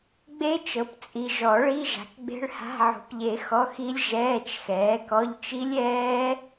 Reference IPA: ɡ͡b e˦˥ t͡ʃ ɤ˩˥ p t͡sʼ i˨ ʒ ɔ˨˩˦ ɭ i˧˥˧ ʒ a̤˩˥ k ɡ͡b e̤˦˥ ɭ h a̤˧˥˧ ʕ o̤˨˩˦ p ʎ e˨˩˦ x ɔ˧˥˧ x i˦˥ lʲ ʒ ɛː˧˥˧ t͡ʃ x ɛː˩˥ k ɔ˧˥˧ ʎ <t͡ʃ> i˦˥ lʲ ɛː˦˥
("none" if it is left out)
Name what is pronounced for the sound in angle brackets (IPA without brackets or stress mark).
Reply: t͡ʃ